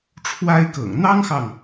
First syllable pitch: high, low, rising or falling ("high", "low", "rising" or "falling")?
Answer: high